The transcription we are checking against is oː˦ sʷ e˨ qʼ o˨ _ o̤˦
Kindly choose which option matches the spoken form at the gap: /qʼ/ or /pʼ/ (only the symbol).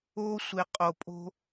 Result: pʼ